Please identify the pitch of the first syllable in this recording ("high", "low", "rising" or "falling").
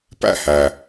falling